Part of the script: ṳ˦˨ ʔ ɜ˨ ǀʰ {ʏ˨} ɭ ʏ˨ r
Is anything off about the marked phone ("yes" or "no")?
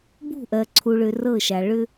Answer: yes